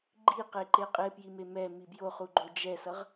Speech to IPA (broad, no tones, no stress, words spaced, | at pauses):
ɡ͡ǃiqeǃe qʼepjime mɛ mibjoχu ɡ͡ǃod͡ʒɛsʌʁ